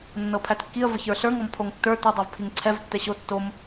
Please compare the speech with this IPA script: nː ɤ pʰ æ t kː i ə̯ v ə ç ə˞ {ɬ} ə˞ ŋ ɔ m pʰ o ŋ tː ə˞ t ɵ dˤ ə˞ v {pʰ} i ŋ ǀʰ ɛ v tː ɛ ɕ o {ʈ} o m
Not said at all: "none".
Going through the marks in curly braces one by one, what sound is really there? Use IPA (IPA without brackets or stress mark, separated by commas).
ɬ, pʰ, tː